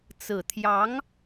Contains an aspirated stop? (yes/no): yes